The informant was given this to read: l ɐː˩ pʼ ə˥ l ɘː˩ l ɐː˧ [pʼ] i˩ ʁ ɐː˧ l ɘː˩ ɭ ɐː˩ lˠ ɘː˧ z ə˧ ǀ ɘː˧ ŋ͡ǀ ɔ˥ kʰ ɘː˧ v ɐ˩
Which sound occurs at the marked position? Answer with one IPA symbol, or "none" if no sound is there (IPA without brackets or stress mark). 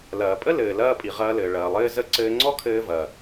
pʼ